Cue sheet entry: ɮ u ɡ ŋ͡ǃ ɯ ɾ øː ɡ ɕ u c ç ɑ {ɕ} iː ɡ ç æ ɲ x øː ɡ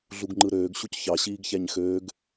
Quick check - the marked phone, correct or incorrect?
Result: correct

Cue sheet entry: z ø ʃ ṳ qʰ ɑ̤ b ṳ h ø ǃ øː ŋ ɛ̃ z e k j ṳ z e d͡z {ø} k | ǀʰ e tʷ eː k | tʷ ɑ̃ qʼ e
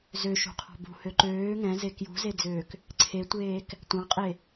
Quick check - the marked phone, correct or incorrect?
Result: incorrect: øː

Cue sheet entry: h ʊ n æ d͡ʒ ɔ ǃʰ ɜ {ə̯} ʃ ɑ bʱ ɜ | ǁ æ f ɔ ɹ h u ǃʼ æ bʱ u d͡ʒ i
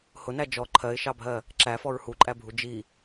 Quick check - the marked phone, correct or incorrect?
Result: incorrect: ɪ̯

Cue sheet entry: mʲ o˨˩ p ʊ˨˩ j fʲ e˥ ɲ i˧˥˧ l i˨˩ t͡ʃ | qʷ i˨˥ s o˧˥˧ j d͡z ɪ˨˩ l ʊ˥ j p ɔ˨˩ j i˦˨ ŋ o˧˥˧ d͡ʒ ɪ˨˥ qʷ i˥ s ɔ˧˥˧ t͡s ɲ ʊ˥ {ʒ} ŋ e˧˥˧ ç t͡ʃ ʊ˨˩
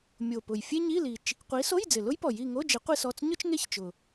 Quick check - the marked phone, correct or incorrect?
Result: incorrect: t͡ʃ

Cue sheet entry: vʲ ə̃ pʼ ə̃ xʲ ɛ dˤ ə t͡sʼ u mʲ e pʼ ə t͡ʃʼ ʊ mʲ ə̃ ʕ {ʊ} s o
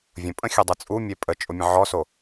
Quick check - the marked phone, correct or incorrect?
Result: incorrect: ɔ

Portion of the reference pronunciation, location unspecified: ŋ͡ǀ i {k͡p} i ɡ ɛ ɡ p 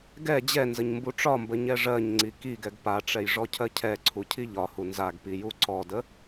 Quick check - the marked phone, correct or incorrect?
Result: incorrect: k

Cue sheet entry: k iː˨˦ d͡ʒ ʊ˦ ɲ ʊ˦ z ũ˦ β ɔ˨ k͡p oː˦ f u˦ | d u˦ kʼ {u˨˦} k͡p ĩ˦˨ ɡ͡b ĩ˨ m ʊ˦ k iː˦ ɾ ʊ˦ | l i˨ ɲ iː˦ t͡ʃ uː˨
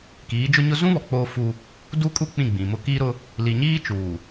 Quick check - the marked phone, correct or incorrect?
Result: incorrect: u˦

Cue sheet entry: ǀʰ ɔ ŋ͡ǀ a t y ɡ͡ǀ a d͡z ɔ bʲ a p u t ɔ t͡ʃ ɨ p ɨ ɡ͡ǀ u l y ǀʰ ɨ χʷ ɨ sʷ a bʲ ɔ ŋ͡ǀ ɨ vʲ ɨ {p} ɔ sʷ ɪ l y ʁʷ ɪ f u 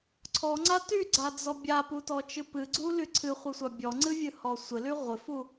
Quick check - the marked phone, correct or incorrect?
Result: incorrect: h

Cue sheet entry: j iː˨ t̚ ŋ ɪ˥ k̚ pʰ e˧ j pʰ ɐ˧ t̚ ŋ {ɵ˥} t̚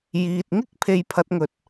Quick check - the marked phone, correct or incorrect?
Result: incorrect: ɵ˨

